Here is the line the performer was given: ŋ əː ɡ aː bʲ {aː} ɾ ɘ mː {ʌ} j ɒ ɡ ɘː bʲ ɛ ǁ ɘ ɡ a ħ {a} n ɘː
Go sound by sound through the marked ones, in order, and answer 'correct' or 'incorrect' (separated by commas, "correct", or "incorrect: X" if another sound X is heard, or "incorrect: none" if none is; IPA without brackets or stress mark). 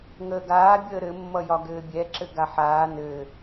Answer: incorrect: əː, correct, incorrect: aː